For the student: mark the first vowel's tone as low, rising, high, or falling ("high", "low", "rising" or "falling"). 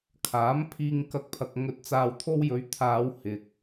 rising